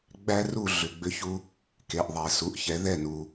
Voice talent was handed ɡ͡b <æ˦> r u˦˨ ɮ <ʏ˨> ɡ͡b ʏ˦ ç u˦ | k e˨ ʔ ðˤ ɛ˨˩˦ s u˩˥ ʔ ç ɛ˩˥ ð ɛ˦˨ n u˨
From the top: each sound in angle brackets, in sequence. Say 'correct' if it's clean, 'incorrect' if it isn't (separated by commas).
correct, correct